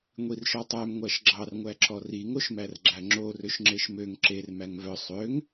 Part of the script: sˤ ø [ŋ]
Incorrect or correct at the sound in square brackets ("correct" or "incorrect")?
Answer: correct